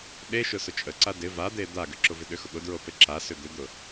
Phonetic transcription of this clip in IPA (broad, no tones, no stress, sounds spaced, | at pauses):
ɗ e ʃ ʊ s ʊ t͡ʃʼ ə ǀ a d ɪ v a d̪ e d̪ a ɡ ʏ ǁ ʊ v ɪ ɗ ʏ x ʊ ɠ ʊ d ɹ o p e ǁ a s ʏ d̪ ʏ d̪ ʊ